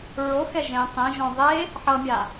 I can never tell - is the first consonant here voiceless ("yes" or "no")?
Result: no